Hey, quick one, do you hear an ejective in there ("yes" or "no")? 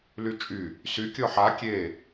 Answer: yes